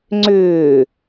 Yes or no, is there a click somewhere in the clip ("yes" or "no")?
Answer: yes